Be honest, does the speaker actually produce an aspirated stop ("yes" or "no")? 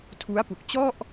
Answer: yes